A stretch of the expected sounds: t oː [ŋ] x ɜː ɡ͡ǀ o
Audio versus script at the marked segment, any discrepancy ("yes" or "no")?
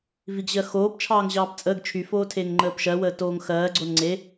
no